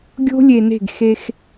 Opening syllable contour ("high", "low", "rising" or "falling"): high